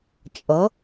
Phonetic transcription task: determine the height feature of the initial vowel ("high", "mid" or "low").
mid